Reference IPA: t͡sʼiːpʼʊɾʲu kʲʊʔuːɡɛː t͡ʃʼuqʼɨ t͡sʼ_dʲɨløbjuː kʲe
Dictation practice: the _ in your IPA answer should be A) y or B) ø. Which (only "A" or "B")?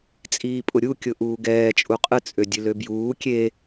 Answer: B